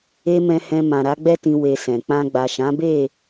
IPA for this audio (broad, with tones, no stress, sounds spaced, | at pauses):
e˦ m ɛ̃˧ h ɛ̃˧ m ã˨ ɾ a˨˦ ɡ͡b ɛ˦ t ĩ˧ w e˧ s ɛ̃˨ k͡p ã˧ ɡ͡b a˨ ʃ ã˨˦ b e˦˨